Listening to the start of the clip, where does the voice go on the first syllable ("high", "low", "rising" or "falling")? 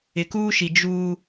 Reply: low